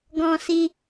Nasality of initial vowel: nasal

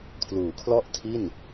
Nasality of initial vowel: oral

